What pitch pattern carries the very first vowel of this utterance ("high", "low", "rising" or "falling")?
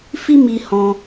high